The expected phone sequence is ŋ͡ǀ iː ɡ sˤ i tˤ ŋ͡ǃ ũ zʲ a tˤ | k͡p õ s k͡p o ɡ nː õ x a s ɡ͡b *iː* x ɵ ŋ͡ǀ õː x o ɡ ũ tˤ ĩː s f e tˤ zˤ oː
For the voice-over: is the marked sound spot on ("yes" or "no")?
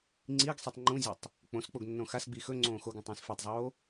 no